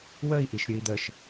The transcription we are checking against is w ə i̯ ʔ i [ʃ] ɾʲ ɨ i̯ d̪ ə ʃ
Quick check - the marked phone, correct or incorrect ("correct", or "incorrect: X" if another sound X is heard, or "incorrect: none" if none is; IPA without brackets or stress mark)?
correct